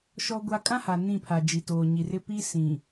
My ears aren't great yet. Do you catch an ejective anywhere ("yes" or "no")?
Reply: yes